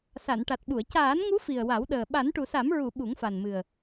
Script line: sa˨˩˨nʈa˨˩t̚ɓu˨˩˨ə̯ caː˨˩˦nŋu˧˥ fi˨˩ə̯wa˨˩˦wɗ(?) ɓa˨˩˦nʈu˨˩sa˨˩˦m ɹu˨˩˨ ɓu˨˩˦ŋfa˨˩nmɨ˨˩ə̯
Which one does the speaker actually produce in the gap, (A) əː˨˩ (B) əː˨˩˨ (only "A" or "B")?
A